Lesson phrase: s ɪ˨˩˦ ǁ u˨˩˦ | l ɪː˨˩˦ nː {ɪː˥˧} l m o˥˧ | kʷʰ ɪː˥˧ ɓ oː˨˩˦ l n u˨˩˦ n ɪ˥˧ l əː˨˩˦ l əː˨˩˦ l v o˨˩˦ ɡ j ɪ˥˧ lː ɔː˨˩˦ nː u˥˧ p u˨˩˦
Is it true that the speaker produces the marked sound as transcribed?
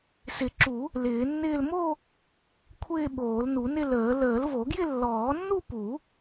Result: yes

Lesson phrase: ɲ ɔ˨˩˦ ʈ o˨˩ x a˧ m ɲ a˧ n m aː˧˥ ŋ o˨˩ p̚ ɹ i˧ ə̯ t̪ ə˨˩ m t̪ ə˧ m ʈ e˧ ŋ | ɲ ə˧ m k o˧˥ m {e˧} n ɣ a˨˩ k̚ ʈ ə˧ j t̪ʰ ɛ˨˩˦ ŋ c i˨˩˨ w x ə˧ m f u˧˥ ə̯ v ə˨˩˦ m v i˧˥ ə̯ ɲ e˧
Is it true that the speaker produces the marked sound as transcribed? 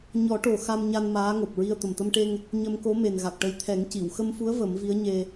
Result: no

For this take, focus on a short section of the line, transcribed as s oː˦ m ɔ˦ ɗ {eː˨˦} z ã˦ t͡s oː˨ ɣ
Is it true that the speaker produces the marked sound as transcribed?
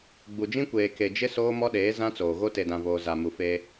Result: yes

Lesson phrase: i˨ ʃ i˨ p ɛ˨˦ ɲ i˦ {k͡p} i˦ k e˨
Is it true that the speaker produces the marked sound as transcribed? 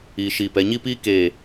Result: no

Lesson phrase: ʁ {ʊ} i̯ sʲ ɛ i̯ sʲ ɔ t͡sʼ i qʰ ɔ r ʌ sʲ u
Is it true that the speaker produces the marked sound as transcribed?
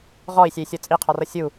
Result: no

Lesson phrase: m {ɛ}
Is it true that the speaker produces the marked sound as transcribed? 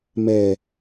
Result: yes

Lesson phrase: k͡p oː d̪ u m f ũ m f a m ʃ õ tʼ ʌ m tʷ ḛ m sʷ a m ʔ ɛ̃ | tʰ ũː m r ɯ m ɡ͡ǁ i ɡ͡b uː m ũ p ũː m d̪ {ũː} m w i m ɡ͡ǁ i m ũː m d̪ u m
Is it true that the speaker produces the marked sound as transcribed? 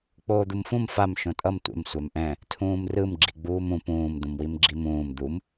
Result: no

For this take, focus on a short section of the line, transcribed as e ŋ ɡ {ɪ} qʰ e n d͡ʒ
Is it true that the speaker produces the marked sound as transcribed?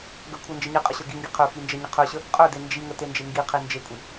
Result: no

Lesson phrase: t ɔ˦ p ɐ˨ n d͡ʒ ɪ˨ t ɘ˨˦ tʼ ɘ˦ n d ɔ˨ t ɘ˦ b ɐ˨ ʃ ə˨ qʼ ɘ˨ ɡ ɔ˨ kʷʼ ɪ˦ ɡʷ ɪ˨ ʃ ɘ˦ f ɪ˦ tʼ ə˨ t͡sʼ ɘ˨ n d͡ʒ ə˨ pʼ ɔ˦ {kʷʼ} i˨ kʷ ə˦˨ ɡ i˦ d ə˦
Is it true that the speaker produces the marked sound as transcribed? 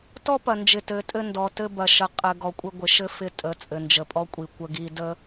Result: yes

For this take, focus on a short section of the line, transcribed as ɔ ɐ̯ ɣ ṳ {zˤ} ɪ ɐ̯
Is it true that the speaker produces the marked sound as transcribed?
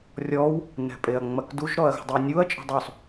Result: no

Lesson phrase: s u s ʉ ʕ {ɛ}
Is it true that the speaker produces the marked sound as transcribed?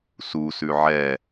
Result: yes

